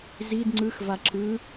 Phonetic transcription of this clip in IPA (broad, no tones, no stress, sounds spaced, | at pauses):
z i d ŋ͡ǀ ɯ x v a ǁ ɯ